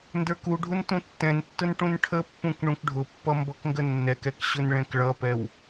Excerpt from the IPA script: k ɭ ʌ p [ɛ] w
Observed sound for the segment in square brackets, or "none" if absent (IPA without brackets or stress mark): ɛ